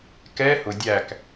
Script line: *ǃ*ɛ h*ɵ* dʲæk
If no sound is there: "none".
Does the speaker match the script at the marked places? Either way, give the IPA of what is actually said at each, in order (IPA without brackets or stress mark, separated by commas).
k, ʊ